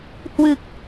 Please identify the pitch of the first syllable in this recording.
low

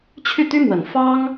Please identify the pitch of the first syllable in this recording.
falling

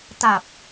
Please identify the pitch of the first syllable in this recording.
low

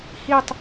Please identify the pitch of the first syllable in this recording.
falling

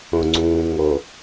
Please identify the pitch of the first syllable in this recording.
low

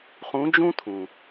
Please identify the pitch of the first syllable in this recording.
rising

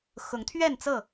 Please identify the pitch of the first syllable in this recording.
rising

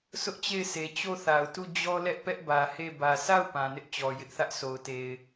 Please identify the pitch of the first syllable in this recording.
high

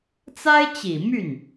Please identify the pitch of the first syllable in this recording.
high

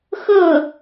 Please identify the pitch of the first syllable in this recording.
falling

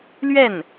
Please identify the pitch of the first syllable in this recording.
falling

